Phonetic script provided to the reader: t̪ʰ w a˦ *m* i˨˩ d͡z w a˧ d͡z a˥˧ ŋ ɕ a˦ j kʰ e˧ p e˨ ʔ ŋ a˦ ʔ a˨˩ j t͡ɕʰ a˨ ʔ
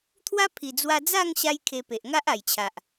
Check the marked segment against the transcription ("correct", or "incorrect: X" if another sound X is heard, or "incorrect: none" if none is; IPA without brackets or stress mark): incorrect: pʰ